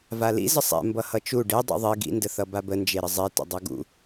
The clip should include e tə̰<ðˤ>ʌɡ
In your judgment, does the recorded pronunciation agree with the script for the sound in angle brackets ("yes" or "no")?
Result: no